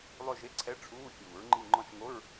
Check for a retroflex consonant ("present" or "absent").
present